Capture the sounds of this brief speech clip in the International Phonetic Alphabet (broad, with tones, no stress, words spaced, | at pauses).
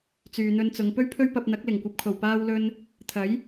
t͡syː˨n̪ɵ˧nt͡sʊ˨˧ŋ pɵ˥ɥpʰɵ˥ɥpɐ˧p̚n̪ɐ˨˥k̚ lɪ˨˩ŋkʷɐ˨p̚kʰo˨˩w paː˥wlɵ˥n | t̪ʰɐ˨˥j